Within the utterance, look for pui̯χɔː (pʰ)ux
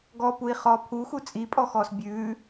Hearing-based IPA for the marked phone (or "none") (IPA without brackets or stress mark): pʰ